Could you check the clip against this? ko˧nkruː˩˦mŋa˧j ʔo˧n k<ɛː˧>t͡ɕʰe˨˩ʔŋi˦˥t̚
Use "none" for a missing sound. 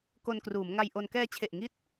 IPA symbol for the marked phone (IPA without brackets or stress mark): ɛː˧